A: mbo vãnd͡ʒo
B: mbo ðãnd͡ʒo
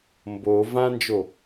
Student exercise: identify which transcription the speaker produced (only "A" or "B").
A